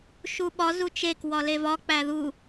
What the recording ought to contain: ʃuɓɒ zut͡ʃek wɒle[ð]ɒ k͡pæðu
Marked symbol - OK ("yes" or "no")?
no